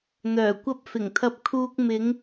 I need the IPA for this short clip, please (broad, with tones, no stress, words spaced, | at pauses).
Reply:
n̪œː˨˩kʷɐ˧p̚fɪ˨˩ŋt̪ʰɐ˧p̚ kʰuː˧k̚ mɪ˨˧ŋ